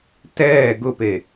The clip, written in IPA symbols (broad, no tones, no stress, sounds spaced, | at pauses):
t ɛː ɡ ʊ p e